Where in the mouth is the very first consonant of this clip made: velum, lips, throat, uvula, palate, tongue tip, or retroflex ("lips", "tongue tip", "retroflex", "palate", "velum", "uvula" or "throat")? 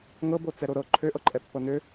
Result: velum